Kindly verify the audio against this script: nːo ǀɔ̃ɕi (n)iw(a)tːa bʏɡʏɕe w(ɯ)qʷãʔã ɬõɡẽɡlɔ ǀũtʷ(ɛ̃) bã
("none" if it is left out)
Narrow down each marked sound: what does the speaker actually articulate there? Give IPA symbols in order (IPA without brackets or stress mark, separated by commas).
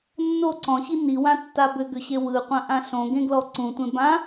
n, ã, ɯ, ẽ